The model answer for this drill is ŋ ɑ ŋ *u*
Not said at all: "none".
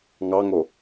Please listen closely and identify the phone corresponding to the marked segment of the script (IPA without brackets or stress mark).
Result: o